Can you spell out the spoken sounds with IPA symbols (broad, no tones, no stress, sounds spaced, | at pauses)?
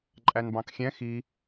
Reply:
ǃʼ æ n b ɑ̃ k xʲ ɛ̃ x i